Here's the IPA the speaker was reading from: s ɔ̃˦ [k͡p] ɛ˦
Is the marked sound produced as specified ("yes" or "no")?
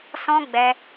no